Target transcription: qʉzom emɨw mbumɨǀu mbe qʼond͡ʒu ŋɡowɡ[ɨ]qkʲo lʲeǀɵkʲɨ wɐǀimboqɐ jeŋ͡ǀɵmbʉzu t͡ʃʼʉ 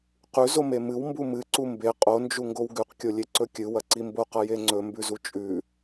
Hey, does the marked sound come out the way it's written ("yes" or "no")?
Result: no